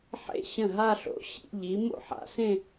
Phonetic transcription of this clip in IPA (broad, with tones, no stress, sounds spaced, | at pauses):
ħ ḛ˥˩ ɕ ə̃˥˩ ɦ a˥˧ ɬ o̰˨˥ ɕ ḭ˥˧ ʎ i˨˥ m o̰˥˧ ħ a̰˨˩˦ s ẽ˥˧